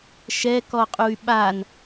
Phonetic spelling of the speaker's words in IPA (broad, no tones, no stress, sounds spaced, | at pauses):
ʃ ɛ k ɔ qʼ u y̯ ɓ a n